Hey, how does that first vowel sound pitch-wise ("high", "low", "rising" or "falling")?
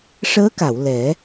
rising